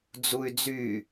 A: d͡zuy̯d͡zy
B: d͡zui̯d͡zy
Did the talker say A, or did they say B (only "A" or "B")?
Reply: A